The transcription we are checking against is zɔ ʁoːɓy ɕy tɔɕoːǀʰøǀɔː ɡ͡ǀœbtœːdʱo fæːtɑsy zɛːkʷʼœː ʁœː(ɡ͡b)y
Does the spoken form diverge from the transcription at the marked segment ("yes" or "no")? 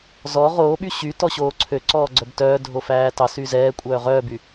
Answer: yes